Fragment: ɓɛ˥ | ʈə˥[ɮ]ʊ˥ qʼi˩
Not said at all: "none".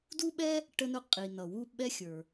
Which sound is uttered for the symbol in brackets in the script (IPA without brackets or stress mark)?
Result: n